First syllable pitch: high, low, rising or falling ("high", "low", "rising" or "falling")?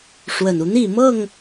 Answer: low